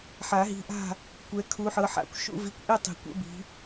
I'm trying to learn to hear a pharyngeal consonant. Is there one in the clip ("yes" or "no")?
yes